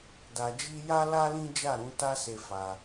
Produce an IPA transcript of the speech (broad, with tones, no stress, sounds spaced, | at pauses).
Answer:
d a˧ d͡ʒ i˦ j a˦ l a˦ l ĩ˦ d͡ʒ a˦˨ ɾ ũ˨˦ t a˦ s e˧ f a˧